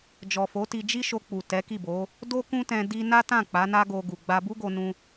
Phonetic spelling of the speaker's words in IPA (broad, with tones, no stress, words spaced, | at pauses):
d͡ʒɔ˨fo˨˦ti˧ d͡ʒi˦ʃo˧k͡pu˨ tɛ˨˦ki˦˨bo˨˦ | do˦kũ˦tɛ̃˧ di˦ na˦tã˦˨ k͡pa˨˦na˦ɡo˧ɡu˨ ɡ͡ba˧bu˦ɡo˧nũ˧